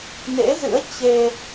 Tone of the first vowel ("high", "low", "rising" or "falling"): rising